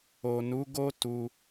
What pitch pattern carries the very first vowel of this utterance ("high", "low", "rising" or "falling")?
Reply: low